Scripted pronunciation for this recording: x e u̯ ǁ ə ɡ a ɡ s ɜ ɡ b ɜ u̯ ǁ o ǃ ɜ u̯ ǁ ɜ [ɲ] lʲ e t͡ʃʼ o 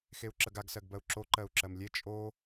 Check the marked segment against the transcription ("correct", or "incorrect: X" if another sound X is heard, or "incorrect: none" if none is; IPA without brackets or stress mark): incorrect: m